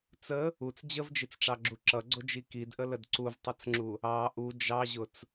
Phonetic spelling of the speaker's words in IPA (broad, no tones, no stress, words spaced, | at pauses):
t͡sə | ut͡s d͡ʑəvd͡ʒit͡sʈ͡ʂɑɡ͡ǁu ǁʌɡ͡ǀʊd͡ʒi kidʔələd ǀuvtˤʌt͡sŋ͡ǁu | ɑ ʔu d͡ʒɑʑʊt͡s